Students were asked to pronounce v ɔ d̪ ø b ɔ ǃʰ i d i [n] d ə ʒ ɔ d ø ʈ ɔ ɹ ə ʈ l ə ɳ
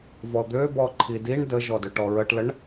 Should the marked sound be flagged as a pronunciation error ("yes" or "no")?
yes